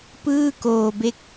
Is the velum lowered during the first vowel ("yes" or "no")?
no